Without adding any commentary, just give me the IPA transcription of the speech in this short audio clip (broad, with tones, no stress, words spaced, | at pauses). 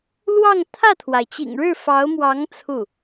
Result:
lwɑ˥˧ŋ t̪ʰä˥˩t̪ʰwa˩ɪ̯t͡ɕḭ˨˩ŋɻɻ̩˥˩ fɑ˧˥ʊ̯mwɑ˧˥ŋ t͡sʰu˥˩